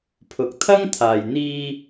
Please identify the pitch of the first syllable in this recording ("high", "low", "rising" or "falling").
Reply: rising